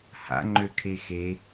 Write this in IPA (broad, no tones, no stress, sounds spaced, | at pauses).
h a̰ ŋ͡ǃ ø kʰ e x e